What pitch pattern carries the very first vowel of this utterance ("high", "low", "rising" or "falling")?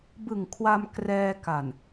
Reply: low